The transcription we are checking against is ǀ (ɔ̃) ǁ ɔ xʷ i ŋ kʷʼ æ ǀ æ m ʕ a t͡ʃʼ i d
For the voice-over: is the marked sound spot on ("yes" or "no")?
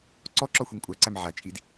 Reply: no